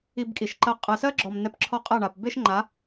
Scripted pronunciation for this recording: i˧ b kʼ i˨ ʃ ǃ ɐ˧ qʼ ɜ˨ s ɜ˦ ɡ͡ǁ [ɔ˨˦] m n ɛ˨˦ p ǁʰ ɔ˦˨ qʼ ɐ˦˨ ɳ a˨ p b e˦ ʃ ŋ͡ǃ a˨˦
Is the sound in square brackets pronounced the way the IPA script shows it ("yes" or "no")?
no